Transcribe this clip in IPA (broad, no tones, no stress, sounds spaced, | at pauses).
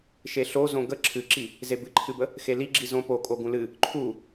ʃ e ɬ o z õ ɡ ə ǁʰ ɨ ǁ i | z e b ɨ ǃʰ ɨ b ə | x e l i ɡ͡ǁ i z õ p o kʼ o ɡ ũ l ɨ | ǃʰ u